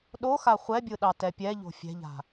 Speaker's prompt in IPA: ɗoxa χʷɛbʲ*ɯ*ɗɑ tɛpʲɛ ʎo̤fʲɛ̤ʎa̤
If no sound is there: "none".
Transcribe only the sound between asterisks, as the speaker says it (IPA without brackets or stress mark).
ɯ